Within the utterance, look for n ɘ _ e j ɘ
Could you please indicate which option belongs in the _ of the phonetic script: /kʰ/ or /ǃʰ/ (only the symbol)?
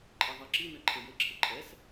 ǃʰ